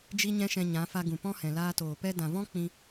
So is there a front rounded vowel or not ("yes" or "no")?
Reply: no